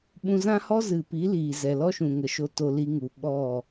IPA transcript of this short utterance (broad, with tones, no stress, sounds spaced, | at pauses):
ɓ ũ˧ z ã˦ h ɔ˦ z ɨ˨ p i˨˦ l iː˨ z ɛ˨ l ɔ˦ ʃ ũ˨ ŋ ə˨ ʃ o˨ t o˨ l i˧ ŋ u˨ ɓ ɔ˦˨